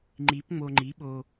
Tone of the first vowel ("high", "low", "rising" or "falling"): rising